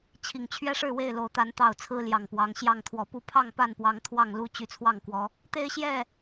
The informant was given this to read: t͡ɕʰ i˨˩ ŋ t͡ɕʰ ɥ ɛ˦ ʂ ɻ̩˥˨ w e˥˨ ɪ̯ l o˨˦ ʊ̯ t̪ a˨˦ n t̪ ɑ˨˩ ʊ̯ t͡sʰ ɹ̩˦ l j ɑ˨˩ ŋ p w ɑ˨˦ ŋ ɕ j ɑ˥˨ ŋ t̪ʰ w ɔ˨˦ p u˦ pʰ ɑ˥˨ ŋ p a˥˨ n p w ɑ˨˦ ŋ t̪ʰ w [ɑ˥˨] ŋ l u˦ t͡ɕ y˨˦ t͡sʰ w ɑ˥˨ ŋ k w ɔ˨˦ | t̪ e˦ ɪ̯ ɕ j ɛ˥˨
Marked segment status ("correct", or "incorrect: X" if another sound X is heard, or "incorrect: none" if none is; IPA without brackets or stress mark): correct